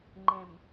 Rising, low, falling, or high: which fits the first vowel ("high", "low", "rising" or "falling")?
low